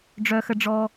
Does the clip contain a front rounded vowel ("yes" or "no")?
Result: yes